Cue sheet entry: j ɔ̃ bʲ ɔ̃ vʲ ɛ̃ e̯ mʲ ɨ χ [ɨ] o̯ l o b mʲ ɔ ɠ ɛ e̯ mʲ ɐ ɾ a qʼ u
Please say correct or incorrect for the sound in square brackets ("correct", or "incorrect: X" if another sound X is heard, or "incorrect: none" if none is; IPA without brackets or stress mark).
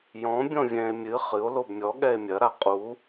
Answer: correct